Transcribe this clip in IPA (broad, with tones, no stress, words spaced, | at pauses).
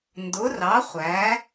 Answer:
ndʊ˨˥rɑ˨˥χʷæ˨˥